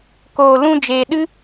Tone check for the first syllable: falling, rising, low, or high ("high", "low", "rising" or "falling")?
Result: low